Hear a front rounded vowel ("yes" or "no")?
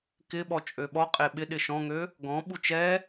yes